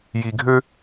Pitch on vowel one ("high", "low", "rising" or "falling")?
low